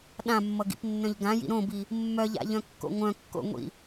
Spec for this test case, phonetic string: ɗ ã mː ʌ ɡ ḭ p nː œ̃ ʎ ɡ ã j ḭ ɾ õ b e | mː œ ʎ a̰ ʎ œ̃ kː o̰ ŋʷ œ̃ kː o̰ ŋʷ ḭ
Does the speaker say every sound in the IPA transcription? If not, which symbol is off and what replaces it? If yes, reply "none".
e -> i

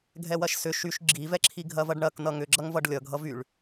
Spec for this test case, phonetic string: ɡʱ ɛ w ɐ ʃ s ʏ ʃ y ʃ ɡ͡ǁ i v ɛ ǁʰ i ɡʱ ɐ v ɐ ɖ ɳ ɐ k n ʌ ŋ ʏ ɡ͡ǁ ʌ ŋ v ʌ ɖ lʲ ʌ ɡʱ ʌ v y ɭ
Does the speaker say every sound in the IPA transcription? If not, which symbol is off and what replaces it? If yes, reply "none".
none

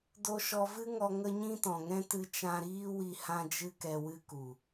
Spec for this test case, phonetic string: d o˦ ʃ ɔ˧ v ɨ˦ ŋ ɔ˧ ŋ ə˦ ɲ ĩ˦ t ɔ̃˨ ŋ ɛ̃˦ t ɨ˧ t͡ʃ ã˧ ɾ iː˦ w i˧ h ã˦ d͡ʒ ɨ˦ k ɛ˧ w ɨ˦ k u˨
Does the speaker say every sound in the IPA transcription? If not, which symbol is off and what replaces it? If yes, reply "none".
none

